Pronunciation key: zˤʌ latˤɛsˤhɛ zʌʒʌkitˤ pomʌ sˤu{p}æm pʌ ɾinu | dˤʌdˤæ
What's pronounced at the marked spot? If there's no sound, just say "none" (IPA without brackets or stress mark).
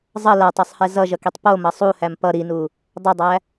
h